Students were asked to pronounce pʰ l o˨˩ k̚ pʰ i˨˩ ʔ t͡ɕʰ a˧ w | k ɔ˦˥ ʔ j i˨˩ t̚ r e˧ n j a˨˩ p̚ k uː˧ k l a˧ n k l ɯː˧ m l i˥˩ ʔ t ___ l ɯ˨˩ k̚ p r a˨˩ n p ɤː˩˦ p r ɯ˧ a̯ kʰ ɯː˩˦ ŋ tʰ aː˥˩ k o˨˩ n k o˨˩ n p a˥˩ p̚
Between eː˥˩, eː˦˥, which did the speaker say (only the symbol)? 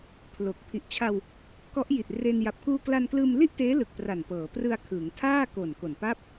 eː˦˥